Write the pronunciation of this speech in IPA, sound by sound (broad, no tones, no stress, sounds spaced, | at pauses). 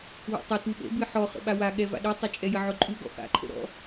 w ɔ̰ tˤ ə t u ɓ ə̰ b ɨ ħ ɔ χ ə̰ ɓ a w a ɠ ɛ v a̰ ɗ ɨ tˤ e t͡ʃʼ ɛ j ə ʕ ʊ ǃʼ u ɡ ɔ̰ x a̰ ǃʰ ə̰ ɾ ɔ̰